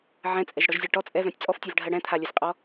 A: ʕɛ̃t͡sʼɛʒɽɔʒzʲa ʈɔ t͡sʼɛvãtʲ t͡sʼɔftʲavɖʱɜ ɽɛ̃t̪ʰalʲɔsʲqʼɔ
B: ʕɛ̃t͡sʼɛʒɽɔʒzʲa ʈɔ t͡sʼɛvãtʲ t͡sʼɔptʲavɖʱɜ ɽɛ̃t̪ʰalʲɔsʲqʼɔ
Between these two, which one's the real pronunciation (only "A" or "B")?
A